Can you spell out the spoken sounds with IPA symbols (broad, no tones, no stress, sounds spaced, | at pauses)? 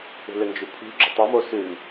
ṳ l ʏ n d͡ʒ ʉ pʰ ṳ ɡ͡ǁ ʉ tˤ o m o s ʉ m